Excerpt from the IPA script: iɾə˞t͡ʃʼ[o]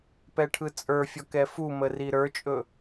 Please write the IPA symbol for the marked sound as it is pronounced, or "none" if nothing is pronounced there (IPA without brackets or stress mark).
ɵ